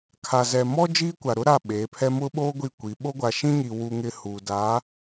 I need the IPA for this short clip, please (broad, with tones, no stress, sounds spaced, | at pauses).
kʰ a˨ z ɛ˨ m ɔ˦ d͡ʒ iː˦ kʷ a˨ ɾ ʊ˦ ɾ a˦˨ ɓ eː˨˦ pʰ ɛ˦ m ʊ˦ ɓ oː˦ ɡʷ i˦˨ kʷ i˨˦ ɓ o˦ ɡʷ a˨ ʃ ĩ˦ ɲ i˨ w u˦ ŋ ɪ˦ h u˨ d a˨˦